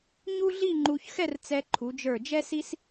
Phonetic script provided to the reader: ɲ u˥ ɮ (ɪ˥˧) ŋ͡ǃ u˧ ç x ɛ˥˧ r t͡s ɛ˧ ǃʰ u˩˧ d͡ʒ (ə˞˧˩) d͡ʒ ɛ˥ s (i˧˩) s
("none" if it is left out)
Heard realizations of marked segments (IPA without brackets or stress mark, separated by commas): i˥˧, ə˞˧˩, i˥